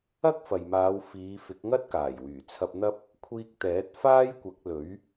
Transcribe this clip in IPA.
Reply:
ɐ˥ k̚ f ɐ˨ j m aː˨˧ w f iː˨˧ f ɪ˨˥ k̚ ŋ ɐ˥ t̚ k aː˨˩ j w yː˨˩ t͡sʰ ɐ˧ p̚ n̪ ɐ˥ p̚ | kʷʰ iː˧ k̚ t̪ ɛː˨˥ t̚ f aː˥ j kʷ ɐ˨˥ k̚ l ɵ˨˥ ɥ

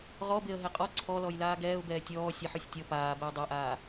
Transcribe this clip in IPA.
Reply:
ʁ ɔ b e ə̯ ɦ e qʼ ɔ ǀʰ ɔ l ɔ j l aː ɡ ɛː ʊ̯ b ɛː tʲ ɔː sʲ ɛ ħ ø sʲ tʲ ɔ p aː b ɛ ə̯ dˤ ɛ ʔ aː

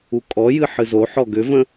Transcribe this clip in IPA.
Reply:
u kʼ ɔ j ɨ ħ ɨ z o ħ ɔ ɡ ʏ v ə̃

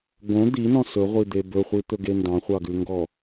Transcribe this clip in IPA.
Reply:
ɡ õ d̪ i n ɔ̃ s ɵ ʁʷ i d̪ e b ɵ χʷ i t̪ ɵ ɡ e n d ɑ̃ χʷ ɑ ɡ ʉ ŋ ɡ ɔ

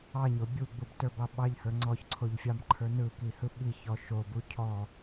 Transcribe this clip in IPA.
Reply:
ɑ ɲ o bʲ u ɡ͡b u b t ə˞ b ɑ ɓ ɑ ʎ h ə˞ ŋ͡ǀ ɔ ç ǀʰ o ʎ fʲ ɑ m ǃʰ ə˞ n ɯ k i h ɯ ɓ i ç ɔ ʃ o b u cʰ ɔ

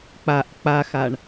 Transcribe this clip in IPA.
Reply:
k͡p a ʔ k͡p a x a ɳ

